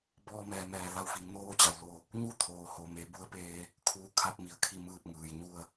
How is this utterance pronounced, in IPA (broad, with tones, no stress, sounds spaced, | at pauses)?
b ɔː˧ m ɛː˩ m ɛː˩ l a˧˩ w f i˩˧ ŋ n oː˧˥ t͡ɕ a˩ w l o˧˩ | ɲ u˥˨ t̪ʰ oː˩ h o˩ m e˩˧ b u˧˥ ə̯ p eː˧ | kʰ uː˧˥ kʰ a˧ p̚ m i˩ ə̯ kʰ i˧ m ɯː˧˩ p̚ ŋ ɯː˩ j ɲ u˥˨ ə̯